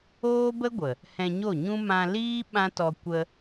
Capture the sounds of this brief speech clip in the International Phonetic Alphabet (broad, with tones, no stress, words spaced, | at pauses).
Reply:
oː˦bə˦ɡʷə˨ | hɛ̃˧ɲo˦˨ɲũ˦ mã˧ liː˦ ɓã˦tɔ˧ kʷə˧